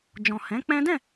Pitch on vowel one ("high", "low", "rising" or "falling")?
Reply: low